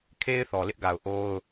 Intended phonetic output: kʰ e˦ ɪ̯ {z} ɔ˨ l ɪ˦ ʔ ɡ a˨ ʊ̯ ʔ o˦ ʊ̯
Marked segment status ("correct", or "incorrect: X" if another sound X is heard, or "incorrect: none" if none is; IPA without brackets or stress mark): incorrect: θ